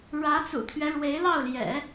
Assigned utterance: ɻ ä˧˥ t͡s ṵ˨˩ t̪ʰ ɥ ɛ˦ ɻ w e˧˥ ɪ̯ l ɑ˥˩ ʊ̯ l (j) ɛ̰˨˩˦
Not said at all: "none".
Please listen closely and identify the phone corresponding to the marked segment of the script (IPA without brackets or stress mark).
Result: j